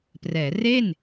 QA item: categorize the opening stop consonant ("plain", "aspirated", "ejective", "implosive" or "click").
plain